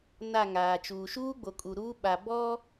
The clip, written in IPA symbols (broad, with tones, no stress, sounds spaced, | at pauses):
n a˦˨ ŋ aː˨ t͡ʃ uː˨ ʃ uː˦ ɡ͡b o˨ kʼ u˨ ɾ uː˦ ɓ a˨ b ɔ˦